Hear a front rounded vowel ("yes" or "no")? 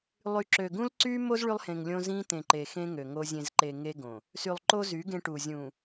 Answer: yes